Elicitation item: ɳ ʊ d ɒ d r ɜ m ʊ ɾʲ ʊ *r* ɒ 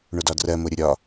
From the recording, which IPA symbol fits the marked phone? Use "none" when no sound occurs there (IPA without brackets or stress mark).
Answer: ɾʲ